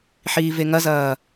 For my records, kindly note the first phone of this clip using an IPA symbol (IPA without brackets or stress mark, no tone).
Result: ħ